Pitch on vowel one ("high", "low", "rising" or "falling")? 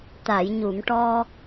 low